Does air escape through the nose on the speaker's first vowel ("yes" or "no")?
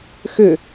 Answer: no